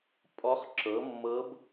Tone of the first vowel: rising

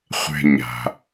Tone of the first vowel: high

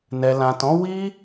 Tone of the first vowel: low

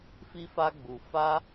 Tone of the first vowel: high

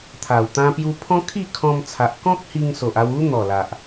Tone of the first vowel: low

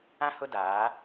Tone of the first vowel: high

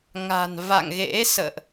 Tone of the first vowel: low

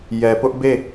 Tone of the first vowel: low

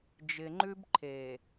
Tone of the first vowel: low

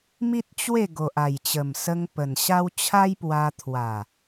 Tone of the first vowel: high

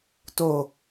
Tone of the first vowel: falling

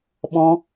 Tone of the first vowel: high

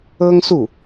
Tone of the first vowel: high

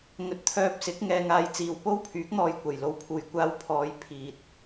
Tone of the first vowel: low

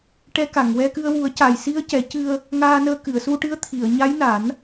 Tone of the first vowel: rising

